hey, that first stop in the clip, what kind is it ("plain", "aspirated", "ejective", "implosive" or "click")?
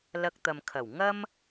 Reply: plain